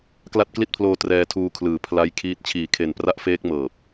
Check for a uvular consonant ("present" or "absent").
absent